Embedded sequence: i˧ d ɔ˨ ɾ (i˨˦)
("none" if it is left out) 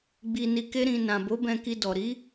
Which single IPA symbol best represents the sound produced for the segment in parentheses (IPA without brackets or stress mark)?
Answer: i˨˦